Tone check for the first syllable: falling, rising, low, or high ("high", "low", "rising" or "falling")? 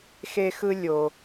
high